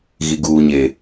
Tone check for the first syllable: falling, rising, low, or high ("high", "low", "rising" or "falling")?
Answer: low